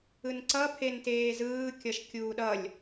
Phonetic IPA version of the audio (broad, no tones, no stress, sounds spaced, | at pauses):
ɯ n ǀ ʌ pʰ e n t eː z ɯː kʲ ʌ ʃ kʲ uː ɗ ʌ lʲ